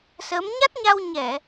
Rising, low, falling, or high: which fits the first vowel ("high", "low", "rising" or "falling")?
rising